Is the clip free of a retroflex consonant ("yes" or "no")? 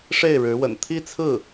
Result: no